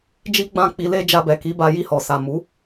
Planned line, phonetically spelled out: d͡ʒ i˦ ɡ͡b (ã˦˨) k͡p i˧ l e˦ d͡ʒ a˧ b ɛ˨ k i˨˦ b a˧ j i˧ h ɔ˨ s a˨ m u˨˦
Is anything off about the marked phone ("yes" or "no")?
no